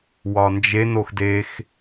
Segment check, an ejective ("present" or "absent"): absent